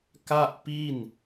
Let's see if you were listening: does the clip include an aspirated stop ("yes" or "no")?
no